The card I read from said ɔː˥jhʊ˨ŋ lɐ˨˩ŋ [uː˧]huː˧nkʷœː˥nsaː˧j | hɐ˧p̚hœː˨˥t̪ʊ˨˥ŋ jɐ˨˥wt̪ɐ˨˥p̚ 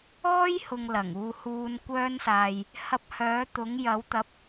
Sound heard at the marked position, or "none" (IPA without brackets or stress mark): uː˧